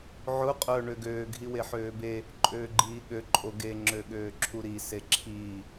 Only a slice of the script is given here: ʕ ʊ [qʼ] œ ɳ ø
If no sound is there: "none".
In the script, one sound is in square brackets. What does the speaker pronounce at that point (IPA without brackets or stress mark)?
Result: qʼ